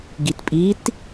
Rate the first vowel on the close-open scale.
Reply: close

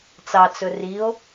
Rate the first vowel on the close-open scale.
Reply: open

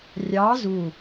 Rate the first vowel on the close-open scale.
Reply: open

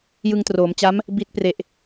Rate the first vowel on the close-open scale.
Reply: close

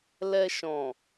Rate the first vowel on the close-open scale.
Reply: mid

